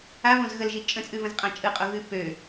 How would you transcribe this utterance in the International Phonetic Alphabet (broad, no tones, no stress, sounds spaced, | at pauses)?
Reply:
a v õ z ɣ ə l ʒ i t͡ʃʼ ə̃ t͡sʼ ʉ v ə̃ z qʼ ã t͡ʃʼ ɯ qʼ o ɣ ʉ p ø